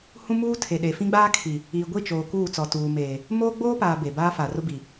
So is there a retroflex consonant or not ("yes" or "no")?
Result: no